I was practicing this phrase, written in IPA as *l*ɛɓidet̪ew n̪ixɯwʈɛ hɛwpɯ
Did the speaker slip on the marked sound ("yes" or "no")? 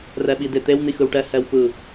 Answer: yes